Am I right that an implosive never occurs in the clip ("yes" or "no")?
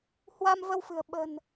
no